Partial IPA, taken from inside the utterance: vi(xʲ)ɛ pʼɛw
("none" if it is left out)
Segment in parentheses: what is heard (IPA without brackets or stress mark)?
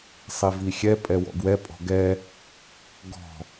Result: xʲ